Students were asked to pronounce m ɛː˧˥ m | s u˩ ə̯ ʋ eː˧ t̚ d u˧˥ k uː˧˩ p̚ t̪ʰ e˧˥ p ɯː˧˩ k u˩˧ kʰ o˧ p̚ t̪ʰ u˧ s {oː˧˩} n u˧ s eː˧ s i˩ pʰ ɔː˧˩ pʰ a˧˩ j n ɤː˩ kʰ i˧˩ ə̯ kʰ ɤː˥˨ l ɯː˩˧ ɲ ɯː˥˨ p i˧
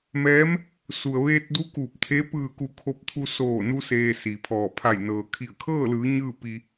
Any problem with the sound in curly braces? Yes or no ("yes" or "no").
no